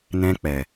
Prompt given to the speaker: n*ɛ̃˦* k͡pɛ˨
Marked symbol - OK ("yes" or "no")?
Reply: yes